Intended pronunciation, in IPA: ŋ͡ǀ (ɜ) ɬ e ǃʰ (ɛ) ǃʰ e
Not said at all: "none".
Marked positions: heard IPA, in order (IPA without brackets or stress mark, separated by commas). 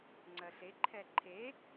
ɜ, ɛ